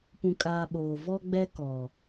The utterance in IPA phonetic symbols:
p ũ˨ kʼ aː˨ ɓ oː˨ v ɔ˦ ɡ͡b ɛ˦ k ɔ˨

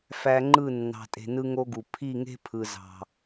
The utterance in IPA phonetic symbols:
f æ˧ ŋ͡ǃ ɯ˦˨ nː ɑ̤˨ tʼ e̤˨ n ɯ˦ ŋ o˦ ɡ u˨ pʰ i˦˨ ŋ e̤˦ pʰ ɯ˨ z ɑ̤˨

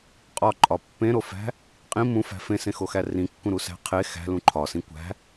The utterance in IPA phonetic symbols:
qʼ ɒ ǃʼ ɒ pː ẽ ɾ o f æ̤ | qʼ ĩ m ũ f æ̤ f ẽ s ẽ x o x æ r ĩ kː ũ ɾ u s æ̤ qʰ e x æ̤ l ũ ǃʰ ɒ s ĩ kʷ æ̤

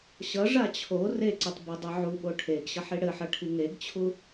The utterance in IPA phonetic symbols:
ɕ ʌ ʐ a t͡ɕʰ o r e ǀ ɘ tˤ b ɘ dˤ ʌ ʕ u ɓ o ʈʰ e ɡ ɕ ʌ ħ i ɽ ɘ ħ ʌ ʈʰ i ŋ e ɡ t͡ɕʰ u

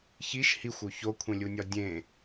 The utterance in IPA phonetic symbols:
ç i ʃ h i xʷ o ç o kʷʰ ẽ lʲ u nʲ ɒ dʲ ẽ

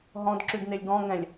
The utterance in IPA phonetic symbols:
ɦ ɔ̃ d ǁ ʉ d n e lʲ ɡ ɔ̃ ŋ ɛ̃ lʲ

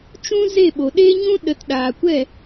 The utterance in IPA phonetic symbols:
t͡ʃ ũ˦ z e˦˨ ɓ o˨ ɗ e˧ ɲ ũ˧ ɗ ə˨ t ɗ aː˨ kʷ ɛ˦˨

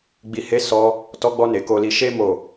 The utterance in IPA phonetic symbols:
ɡ͡b i˨ h e˨˦ s ɔ˧ | t ɔ˧ ɡ͡b ɔ˧ n e˨ k o˨ l i˨ ʃ e˧ m o˨

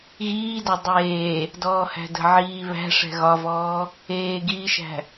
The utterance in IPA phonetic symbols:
ɣ iː d a dˤ eː | d ɔː h æ̤ d ə̤ ʕ iː β æ̤ ʂ ɛ̤ ɣ ɒ v ɔː | eː ɡ iː ʃ æ̤

